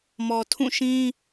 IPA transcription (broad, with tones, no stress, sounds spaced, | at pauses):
m ɔ˨ tʰ ũ˦˨ ʃ ĩ˦